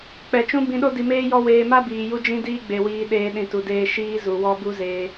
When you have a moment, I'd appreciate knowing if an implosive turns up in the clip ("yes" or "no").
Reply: yes